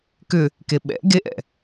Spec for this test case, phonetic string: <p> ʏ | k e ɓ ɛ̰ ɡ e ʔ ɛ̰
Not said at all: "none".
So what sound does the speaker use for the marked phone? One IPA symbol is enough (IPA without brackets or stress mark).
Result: k